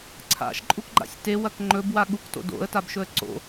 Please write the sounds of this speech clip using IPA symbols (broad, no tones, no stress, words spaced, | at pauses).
ǀʰa̰ʃǃʼukɡ͡ǃa̰sʲ tewɐk ŋ͡ǃɵbwa ɠukto̰ do̰ə̯tabʃɵə̯ ǀo̰